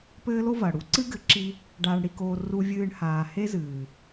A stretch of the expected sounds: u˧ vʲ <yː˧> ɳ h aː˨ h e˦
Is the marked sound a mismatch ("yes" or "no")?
yes